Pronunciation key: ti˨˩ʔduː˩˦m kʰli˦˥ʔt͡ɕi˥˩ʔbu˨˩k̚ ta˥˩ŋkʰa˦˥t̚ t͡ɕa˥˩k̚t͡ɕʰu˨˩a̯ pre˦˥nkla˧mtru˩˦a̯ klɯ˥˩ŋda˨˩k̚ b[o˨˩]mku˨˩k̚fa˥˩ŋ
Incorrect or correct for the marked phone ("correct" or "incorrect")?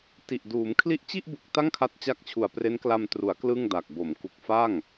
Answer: incorrect